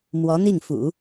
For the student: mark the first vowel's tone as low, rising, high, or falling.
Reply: rising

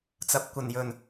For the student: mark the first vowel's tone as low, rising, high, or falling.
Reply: low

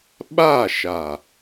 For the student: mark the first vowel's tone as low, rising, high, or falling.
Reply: falling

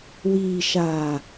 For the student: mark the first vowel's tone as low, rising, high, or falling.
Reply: low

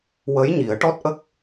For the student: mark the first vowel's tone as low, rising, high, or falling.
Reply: rising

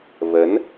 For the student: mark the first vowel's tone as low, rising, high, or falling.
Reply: rising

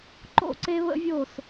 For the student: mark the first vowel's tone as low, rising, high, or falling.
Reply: falling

